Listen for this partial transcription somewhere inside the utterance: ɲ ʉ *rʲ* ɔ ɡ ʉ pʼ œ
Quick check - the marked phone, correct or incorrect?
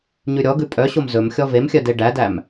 incorrect